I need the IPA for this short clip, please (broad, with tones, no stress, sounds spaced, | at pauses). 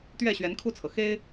t̪ ɥ ɛ˥˨ ɕ ɥ ɛ˨˦ n kʰ u˥˨ t͡sʰ ɤ˩ x e˦ ɪ̯